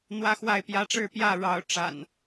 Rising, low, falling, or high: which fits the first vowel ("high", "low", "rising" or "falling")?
high